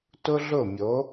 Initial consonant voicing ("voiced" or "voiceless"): voiceless